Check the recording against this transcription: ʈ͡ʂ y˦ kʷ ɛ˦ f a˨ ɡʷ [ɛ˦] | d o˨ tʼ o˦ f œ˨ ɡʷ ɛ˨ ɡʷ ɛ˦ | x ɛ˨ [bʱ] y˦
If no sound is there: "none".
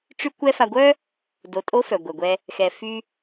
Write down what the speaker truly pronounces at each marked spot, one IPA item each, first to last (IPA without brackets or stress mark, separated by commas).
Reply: œ˦, f